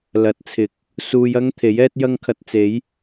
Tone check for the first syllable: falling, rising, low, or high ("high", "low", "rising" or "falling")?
rising